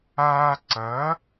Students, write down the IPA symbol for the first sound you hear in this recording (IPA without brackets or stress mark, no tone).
aː